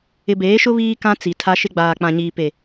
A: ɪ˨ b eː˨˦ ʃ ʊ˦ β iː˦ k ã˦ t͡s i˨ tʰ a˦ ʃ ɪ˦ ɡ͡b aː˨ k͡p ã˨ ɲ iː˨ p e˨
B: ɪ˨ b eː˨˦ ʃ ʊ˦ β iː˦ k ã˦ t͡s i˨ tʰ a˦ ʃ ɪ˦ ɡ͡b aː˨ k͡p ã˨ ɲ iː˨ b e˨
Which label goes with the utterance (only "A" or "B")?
A